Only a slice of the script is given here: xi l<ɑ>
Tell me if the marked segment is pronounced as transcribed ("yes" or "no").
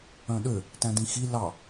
yes